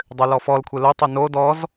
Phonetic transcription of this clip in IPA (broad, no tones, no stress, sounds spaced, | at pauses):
dˤ ʏ l ɔ f ɔ l kʷʰ e l o tˤ ʏ n o d ɔ z